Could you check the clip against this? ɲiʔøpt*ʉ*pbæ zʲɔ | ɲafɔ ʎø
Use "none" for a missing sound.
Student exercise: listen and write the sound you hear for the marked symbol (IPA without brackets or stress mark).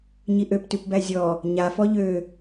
ʉ